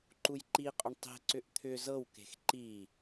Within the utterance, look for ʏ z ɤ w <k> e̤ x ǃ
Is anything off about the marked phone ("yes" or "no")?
no